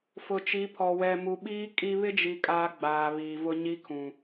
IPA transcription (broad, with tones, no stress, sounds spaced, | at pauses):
f ʊ˨ t͡ʃ i˨˦ pʰ ɔ˨ w ɛ˨ m u˨ ɓ iː˦ kʼ i˦ β ɪ˦ d͡ʒ i˨ kʼ aː˦ ɡ͡b aː˨ β iː˨ v ʊ˦ ɲ i˦ kʰ ũ˨